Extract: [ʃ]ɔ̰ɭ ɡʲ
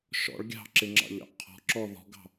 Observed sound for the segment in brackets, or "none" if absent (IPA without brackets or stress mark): ʃ